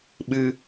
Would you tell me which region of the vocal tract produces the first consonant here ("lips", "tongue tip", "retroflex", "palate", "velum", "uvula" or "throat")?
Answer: lips